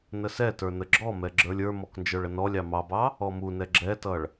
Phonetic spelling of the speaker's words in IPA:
n ə s ɛ t ə˞ n ə ɡ͡ǁ ɔ m ɛ ɡ͡ǁ ə˞ lʲ ə˞ m ɔ k n d͡ʒ ə˞ ɭ ə n ɔ lʲ ɑ m ɑ b ɑ | ɔ m u n ɛ ɡ͡ǁ ɛ t ʌ ɭ

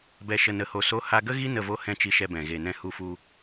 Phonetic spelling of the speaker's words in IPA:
b ɛ˧ ʃ ə˧ n ə˧ h o˧ s o˦ h a˧ ɡ ə˦ ɣ i˦ n ə˦˨ v o˦ h ɛ̃˧ t͡ʃ i˧ ʃ ɛ˧ b ɛ̃˨ ɣ e˨ n ɛ̃˧ h u˧ f u˧

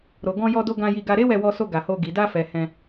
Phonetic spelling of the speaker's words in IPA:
ɾ o˨ ɡ ɔ̃˧ j ɔ˧ d o˧ ɡ ã˧ j i˧ ɡ a˧ ɾ e˦ w ɛ˧ w ɔ˧ s o˧ ɡ a˨ h o˧ ɡ i˨ d a˧ f ɛ˨ h ɛ̃˧

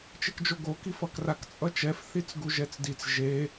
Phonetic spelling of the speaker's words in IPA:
t͡ʃ e k d͡ʒ o ɡ o k i f ʌ k r a k t͡sʼ ʌ t͡ʃ ɛ f θ i t͡s ɡ u ʒ ɛ t͡s d i t͡s ʒ e

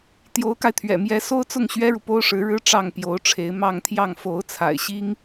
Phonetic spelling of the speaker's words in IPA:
t̪ j o˧˥ ʊ̯ k a˧ ɪ̯ t̪ʰ ɥ ɛ̰˨˩ m j ɛ˧˥ s o˥ ʊ̯ t͡s ʊ˥˩ ŋ ɕ ɥ ɛ˥ ɻ u˨ p o˥ ʊ̯ ʂ ɻ̩˧˥ ɻ ɻ̩˥ ʈ͡ʂ ɑ˥˩ ŋ p j o˧˥ ʊ̯ ʈ͡ʂʰ e˧˥ ɪ̯ m ɑ˥˧ ŋ t̪ʰ j ɑ˥˩ ŋ f o˧˥ ʊ̯ t͡sʰ a̰˨˩ ɪ̯ ɕ i˥ ŋ

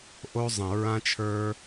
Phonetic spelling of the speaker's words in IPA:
ʔ o˧ zˤ ə̃˨ ɹ ã˧ t͡ʃʰ ə˞˧

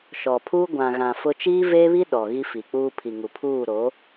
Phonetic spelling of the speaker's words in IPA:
ʃ ɔ˨ pʰ uː˦ ɡʷ ã˨ ɣ ã˨ f ʊ˦ t͡ʃ iː˦ v eː˦ β i˦ ɗ ɔ˨ ɣ i˦ f i˨ k͡p uː˦ pʰ i˨ ŋ u˨ pʰ uː˦˨ ɾ o˨˦

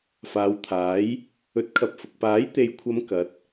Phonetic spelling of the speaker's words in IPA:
f aː˨˧ w t̪ʰ aː˨˥ j | ɵ˨˥ t̚ kʰ ɐ˨ p̚ f ʊ˨ k̚ p aː˨˥ j t̪ e˨ j kʷʰ ɐ˨˧ m k ɐ˨˥ t̚

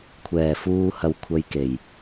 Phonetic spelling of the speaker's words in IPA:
kʷʰ ɛː˨˩ f uː˧ h ɐ˨˧ w kʷʰ ɐ˧ j k e˨˩ j

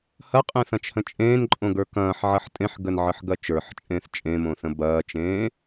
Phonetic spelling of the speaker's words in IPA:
h ɐ qʼ ẽ θ ɐ̃ t͡ʃ h ə̃ t͡ʃʼ ẽː n ǃʼ õ ɡ ə˞ k ɐ̃ː ħ ʕ ɐ ħ tʼ ẽ ħ ɡ ə n ʕ ə ħ ɡ ɐ t͡ʃ ə˞ ħ t͡ʃʼ ẽː θ t͡ʃʼ ẽ m õ θ ə̃ b ɐː t͡ʃ ẽː

